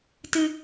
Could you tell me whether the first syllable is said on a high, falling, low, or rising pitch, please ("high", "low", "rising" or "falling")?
high